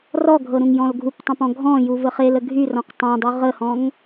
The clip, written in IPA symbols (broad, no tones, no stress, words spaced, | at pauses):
rɔɡʱɤ ɾũŋjɔ̃lɡʱuptˤãp ɔ̃ɡʱɔ̃ju vəχelə ɡʱyrɔ̃q tˤãdˤy ʁəhɔ̃ŋ